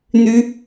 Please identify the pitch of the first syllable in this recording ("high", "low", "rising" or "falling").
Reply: high